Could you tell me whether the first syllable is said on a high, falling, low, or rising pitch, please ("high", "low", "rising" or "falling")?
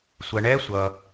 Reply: low